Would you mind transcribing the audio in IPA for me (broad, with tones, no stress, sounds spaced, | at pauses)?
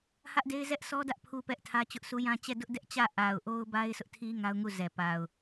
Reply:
h ä˦ ʔ d e˦ ɪ̯ z ɛ˦ ʔ sʰ ɔ˦ d ä˦ ʔ pʰ u˦ p ɛ˦ ʔ tʰ ä˦ t͡ɕ ʊ˦ ʔ sʰ u˦ j ã˦ t͡ɕ ɛ˦˨ d ʊ˦ ʔ d ɛ˦ ʔ t͡ɕ ä˦˨ ʔ a˨ ʊ̯ ʔ o˦ ʊ̯ b a˦ ɪ̯ s ʊ˦ ʔ tʰ i˦ ŋ a˦ ʊ̯ ŋ u˦˨ z ɛ˨ p a˨ ʊ̯